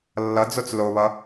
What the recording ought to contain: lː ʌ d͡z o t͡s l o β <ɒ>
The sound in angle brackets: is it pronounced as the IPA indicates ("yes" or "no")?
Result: no